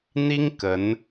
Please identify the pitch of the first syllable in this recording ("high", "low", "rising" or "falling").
high